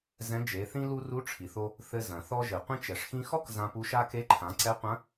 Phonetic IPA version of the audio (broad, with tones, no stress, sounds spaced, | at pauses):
z ɛ̃˧˥ d͡ʒ e˩˧ θ ĩ˥ l u˥ r u˧˥ ʈ͡ʂʰ i˩ θ o˧ | θ ɘ˧ z ɐ̃˩ θ ɔ˧ ʒ ɘ˩ qʷ ĩ˧ t͡ʃ ɛ˩ ʂ x ĩ˧ x ɔ˥ k z ã˧ p u˧˥ ʃ a˥ k e˧˥ ǃʰ ã˩˧ ǀ ɛ˧˥ qʷ ɐ̃˧˥